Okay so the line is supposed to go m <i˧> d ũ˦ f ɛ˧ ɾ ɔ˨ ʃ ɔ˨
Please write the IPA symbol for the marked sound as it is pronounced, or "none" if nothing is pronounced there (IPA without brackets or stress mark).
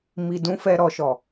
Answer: i˧